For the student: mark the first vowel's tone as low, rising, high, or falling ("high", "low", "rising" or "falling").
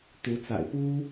rising